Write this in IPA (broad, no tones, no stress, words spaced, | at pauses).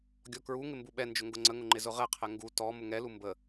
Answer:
ɡʲɔkɹuŋɪ mbuɓɛnd͡ʒʊ ŋɡʊŋ͡ǀəŋʊ ŋ͡ǃɪzʊʁɛqʰɛ ŋɡu tɔ mʊŋɛlu mbə